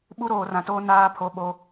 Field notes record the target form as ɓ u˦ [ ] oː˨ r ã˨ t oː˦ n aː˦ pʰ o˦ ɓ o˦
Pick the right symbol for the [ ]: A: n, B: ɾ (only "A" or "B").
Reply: B